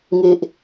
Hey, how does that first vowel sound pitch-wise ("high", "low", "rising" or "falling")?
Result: low